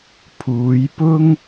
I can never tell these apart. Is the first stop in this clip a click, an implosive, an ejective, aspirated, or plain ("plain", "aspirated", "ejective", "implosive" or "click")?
aspirated